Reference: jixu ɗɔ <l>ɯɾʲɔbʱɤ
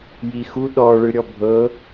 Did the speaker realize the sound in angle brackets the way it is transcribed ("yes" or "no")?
no